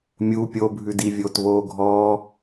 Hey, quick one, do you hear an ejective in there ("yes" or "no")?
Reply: no